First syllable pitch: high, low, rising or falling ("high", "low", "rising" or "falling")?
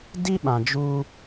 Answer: high